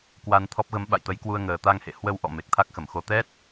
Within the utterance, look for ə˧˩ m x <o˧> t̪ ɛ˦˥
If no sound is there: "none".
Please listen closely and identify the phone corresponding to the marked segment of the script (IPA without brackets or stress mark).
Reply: o˧